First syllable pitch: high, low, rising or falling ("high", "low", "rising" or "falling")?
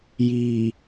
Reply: low